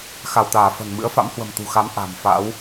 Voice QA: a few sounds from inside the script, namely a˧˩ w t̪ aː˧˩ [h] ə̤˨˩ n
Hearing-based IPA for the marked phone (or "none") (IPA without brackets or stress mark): f